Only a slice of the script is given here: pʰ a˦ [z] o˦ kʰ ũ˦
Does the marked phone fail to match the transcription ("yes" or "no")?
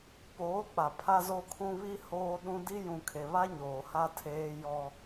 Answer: no